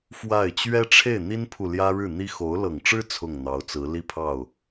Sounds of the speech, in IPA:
fwa˥˩ɪ̯ t͡ɕɥɛ˥ʈ͡ʂʰe˥˩ɪ̯n̪i˥npʰu˨ ljä˥ɻɻ̩˥˩n̪i˥ xo˧˥ʊ̯ lɤ˨˩ŋʈ͡ʂɻ̩˥ t͡sʰʊ˥˩ŋn̪ɑ˧˥ʊ̯t͡sɹ̩˧˥ li˥˧pʰɑ˥˩ʊ̯

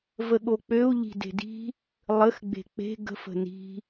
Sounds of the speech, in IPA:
vəɠok͡pøu̯ ʎi̤de̤di̤ | lˠəx ɡ͡be̤k͡pe̤ ɡə̤f ə̤ni̤

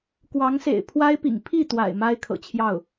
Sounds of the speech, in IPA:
kwɑ˧˥ŋsḛ˨˩ɪ̯ pʰwa˥ɪ̯pḭ˨˩ŋ pʰi˥˩t̪wa̰˨˩ɪ̯ ma˥ɪ̯kʰɤ̰˨˩t͡ɕʰjɑ˥˩ʊ̯

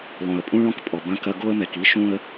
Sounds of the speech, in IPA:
lˠõ˨ə̯pʼũ˦ɭɔ̃˦k pʼɔ˨bɐ̃˦ kɐ˦ ɡo˦ə̯mɛ˨k i˦ʃũ˦ə̯

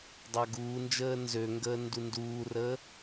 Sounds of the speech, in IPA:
dˤaɡuːnd͡ʒəː nzøŋɡəː ndunduːrəː

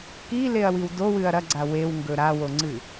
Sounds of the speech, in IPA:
kileɐ̯wiw dowɨɐ̯ ɾɐɡ͡ǀa wewŋɡɵ ɾawoŋ͡ǀɨ

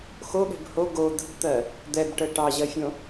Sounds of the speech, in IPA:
xoɠɛ̤b ho ɡo d̪ə̤bt̪ɜ | d̪ɛbʈə ʈɑʑɜfʲõ

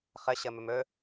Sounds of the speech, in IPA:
χəɕə mɵmɵ

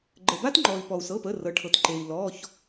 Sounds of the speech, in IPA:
ɡ͡ǃə˩ba˥tŋ͡ǃɔ˩i̯ pɔ˩u̯sɤ˩˧˩pə˩˧˩ rɤ˩ʈʰɤ˩tǃe˩i̯ lɔ˩˧˩ç

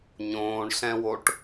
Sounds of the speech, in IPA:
ɲõːɳɬɛ̃woʈ

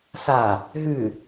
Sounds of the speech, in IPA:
sa | ɦʉ

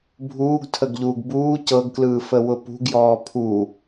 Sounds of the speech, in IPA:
bʱuːɡtʰəɡʎuːɡ buː cɤɡklɯːfəwʊ pṳɡjɔː pʰu

